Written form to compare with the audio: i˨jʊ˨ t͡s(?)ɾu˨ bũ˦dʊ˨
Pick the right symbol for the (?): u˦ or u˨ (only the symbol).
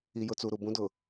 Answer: u˨